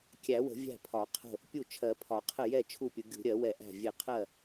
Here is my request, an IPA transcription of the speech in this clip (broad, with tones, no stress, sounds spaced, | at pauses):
kʲ æ˨˩˦ w ə̤˨˩˦ vʲ æ̤˥˩ pʰ ɒ˨˩˦ qʰ ə̤˥˩ | pʲ u˥˩ t͡ʃʰ ɜ˨˩˦ pʰ ɒ˨˩˦ qʰ ə˥˩ j ɛ˥˩ t͡ʃʰ u˥˩ pʲ ʊ˨˩˦ ɡʲ ṳ˨˩˦ ɾʲ ɜ˨˩˦ w ɛ˨˩˦ ʔ æ̤˥˩ vʲ ɛ˥˩ qʰ ɜ˥˩